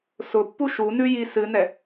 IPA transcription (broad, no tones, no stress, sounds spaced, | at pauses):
s ʊ pː u ʃ u n ʉ j i s ɨ n ɛ